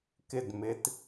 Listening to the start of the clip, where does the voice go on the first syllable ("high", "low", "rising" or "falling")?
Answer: falling